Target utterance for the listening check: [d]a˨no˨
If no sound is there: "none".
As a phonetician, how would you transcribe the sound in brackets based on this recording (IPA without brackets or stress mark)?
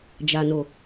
d͡ʒ